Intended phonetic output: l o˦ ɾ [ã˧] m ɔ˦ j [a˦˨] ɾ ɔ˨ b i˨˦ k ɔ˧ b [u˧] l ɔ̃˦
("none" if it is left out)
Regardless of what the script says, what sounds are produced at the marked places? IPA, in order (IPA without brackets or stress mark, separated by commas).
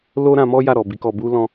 ã˧, a˦˨, u˦